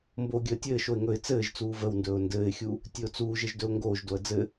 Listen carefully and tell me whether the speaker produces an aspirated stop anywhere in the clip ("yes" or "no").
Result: no